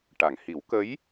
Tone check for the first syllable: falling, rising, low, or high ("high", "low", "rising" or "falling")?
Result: low